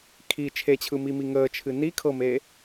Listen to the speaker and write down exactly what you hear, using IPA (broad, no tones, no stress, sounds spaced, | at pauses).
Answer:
kʰ i t͡ʃʰ e t͡ɕʰ ɯ m i m i ŋ əː t͡ʃʰ ɨ n i kʰ ɤ m eː